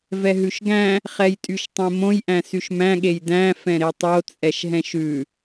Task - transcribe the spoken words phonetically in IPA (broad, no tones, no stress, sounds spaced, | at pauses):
v ɛ ɦ ʉ ʃ ɡ æ̃ | χ ɛ j tʼ y ʃ tˤ ẽ m õ j ʔ æ̃ s y ʃ m æ̃ ɠ e j d æ̃ f ɛ̃ ɾ e tˤ o t͡sʼ ɛ ʃ ɦ ɛ̃ ʃ ʉ